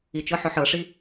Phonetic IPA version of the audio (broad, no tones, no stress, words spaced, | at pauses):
it͡ʃɤħɔħ ɤʂi